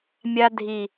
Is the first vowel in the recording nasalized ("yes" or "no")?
no